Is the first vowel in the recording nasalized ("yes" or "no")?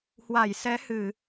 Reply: no